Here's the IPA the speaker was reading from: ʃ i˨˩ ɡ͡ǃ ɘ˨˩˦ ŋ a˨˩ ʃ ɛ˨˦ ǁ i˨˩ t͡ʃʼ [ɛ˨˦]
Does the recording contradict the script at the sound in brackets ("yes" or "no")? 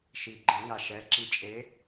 yes